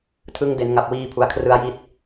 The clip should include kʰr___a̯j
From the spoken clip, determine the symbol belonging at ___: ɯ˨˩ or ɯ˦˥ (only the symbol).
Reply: ɯ˦˥